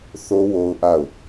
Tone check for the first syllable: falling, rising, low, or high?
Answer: high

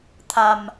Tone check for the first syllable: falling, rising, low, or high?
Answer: low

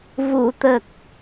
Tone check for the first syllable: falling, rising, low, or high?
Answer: low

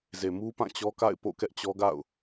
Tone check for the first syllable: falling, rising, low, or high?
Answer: low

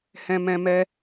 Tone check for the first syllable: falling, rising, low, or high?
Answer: high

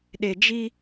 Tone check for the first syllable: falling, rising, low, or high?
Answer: low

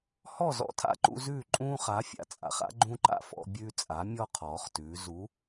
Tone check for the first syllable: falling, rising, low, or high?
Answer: falling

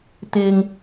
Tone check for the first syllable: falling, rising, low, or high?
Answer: low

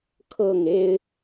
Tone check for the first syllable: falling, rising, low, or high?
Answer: falling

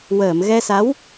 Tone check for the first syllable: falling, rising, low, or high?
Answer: low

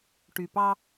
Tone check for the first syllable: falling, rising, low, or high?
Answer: low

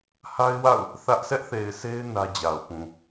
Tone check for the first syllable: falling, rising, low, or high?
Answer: high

